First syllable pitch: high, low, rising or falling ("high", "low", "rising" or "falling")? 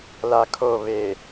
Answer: low